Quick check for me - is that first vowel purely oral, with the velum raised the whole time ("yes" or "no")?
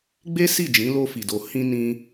yes